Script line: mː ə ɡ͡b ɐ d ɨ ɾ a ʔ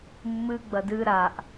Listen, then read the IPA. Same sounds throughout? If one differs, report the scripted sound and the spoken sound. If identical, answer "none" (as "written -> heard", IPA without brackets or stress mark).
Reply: ə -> ɨ